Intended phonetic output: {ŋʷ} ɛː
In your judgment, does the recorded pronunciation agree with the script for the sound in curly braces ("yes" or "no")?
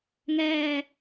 no